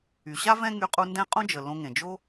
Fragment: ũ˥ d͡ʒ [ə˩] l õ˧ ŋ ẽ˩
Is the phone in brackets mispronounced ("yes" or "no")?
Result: no